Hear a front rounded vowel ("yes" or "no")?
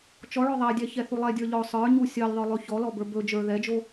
no